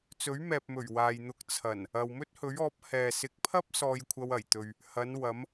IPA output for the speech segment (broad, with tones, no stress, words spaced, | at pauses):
t͡sɵ˨˥ɥmɛː˨p̚mɵ˨˩ɥ waː˨jn̪ʊ˧k̚ t͡sʰɐ˨˩n | ɐ˨wmɵ˥t̚hɵ˨˥ɥɔː˨˥p̚ hɛː˨sɪ˨˥k̚pʰɐ˥p̚ sɔː˧jkʷʰɐ˧w ɐ˨˩jt̪ɵ˨ɥ | hɐ˨˧nwɐ˨˧m